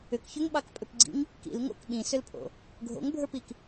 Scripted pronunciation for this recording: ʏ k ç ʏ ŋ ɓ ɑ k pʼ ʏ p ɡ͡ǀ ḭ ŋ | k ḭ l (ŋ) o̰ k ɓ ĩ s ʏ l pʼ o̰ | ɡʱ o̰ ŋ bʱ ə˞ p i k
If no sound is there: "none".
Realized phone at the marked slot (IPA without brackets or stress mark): ŋ